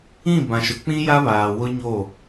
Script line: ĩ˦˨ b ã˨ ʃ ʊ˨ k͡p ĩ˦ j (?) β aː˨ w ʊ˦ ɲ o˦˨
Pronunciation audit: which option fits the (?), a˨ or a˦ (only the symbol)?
a˦